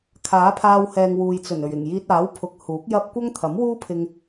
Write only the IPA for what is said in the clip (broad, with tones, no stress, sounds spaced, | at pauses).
kʰ aː˨˥ pʰ aː˧ w h ɛː˨ ŋ w uː˨ j t͡s ɵ˨˩ n ɵ˨˩ ɥ ɪ˨˩ ŋ j iː˧ t̚ aː˨˥ w pʰ ʊ˨˥ k̚ h uː˨˥ k̚ j ɐ˥ p̚ kʷ ɐ˥ ŋ t̪ʰ ɐ˨˥ m w uː˥ pʰ ɪ˧ ŋ